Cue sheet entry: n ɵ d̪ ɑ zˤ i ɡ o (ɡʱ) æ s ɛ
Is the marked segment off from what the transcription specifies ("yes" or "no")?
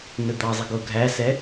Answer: no